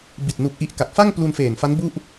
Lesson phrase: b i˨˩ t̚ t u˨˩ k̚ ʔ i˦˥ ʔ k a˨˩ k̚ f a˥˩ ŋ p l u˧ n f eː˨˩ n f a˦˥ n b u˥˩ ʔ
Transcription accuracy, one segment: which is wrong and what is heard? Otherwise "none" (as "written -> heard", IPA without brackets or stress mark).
t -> n